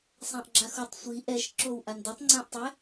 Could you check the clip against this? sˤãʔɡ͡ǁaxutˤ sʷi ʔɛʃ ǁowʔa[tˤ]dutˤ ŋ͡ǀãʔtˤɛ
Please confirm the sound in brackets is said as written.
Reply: no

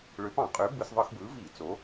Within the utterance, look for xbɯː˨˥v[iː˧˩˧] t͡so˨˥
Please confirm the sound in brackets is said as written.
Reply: yes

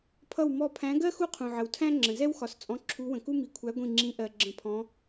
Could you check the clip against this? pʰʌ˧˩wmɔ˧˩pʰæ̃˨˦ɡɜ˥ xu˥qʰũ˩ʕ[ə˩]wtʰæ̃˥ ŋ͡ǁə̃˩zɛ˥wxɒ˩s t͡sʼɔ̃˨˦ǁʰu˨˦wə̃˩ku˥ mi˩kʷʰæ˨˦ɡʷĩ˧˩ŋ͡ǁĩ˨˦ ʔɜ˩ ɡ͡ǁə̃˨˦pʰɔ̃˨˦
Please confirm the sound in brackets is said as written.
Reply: yes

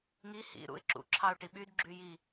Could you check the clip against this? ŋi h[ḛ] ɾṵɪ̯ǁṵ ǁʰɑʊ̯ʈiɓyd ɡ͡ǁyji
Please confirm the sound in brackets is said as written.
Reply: no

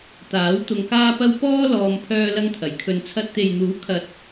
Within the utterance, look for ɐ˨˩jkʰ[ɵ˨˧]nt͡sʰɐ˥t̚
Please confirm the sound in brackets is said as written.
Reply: no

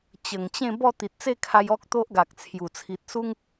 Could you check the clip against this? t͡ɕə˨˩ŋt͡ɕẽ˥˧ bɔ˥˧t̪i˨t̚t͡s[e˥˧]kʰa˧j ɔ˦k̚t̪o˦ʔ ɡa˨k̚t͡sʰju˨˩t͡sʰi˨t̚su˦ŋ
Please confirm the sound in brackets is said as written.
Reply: yes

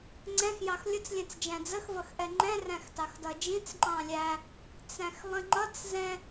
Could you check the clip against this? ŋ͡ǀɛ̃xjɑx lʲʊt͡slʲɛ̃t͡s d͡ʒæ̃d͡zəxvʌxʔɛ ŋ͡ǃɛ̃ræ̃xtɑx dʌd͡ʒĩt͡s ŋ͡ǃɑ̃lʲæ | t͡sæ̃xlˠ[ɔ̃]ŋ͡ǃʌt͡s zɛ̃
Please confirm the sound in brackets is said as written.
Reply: no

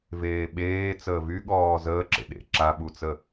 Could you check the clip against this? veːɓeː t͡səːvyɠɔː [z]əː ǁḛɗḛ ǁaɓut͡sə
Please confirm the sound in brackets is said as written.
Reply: yes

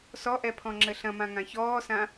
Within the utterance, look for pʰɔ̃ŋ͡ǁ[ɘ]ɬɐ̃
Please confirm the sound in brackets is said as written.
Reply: yes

